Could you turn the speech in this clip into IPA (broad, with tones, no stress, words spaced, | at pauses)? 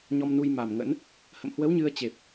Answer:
ɲɔ˧mnu˧jma˨˩mŋə̰˧˥n | hə̰˧˨mhwə˨˦w ɲɨ˧ə̯t͡ɕe˨˩p̚